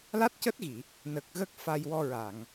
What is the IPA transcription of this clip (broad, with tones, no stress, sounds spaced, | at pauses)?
l a˦˥ t̚ c əː˦˥ t̚ ɣ i˨˩˨ | n ə˨˩ k̚ ɣ ə˦˥ k̚ f a˧ j w ɔ˧ ɹ a˨˩˨ ŋ